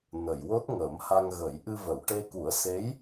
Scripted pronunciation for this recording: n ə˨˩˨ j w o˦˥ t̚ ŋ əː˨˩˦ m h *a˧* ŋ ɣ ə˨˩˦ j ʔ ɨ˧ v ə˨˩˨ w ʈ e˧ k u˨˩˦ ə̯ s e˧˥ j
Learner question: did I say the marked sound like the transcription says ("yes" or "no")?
yes